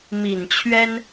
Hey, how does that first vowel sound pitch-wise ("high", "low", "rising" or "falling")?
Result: low